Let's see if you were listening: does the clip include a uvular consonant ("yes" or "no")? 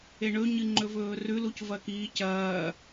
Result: no